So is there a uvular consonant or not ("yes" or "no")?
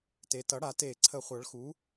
yes